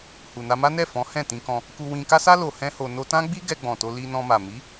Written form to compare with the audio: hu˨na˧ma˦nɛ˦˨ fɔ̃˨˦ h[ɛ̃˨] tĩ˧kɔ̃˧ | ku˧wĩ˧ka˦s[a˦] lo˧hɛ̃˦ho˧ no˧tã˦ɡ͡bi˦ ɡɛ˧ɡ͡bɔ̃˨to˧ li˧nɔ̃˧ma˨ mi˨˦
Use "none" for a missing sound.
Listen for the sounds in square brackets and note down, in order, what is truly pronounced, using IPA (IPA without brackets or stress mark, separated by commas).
ɛ̃˦˨, a˦